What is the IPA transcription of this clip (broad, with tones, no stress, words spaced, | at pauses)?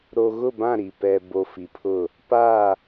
ɾo˨ɣʊ˦˨bã˦˨ ɾi˨ pɛ˨bo˨ fi˨pʰʊ˦˨ | pa˦˨